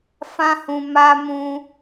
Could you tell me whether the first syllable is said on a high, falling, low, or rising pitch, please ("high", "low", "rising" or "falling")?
high